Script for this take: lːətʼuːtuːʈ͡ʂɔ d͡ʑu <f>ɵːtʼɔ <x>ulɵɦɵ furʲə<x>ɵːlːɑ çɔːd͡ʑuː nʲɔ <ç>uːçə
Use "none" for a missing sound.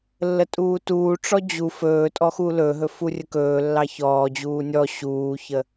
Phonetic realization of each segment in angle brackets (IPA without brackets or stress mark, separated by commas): f, x, k, ɕ